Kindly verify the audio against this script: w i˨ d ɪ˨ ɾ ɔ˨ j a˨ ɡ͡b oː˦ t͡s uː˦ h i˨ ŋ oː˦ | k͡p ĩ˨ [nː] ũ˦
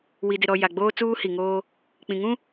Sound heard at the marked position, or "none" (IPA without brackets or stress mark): ŋ